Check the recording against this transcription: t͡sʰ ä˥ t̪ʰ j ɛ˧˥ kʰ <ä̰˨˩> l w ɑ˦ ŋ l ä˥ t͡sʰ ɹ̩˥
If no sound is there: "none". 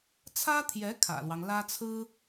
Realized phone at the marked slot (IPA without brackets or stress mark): ä̰˨˩